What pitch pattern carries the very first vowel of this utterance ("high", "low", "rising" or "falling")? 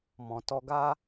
low